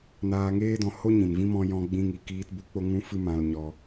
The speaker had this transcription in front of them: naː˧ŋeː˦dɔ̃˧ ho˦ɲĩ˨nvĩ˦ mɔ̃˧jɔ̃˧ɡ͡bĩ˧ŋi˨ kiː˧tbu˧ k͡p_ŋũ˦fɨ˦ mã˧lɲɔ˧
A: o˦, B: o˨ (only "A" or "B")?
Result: A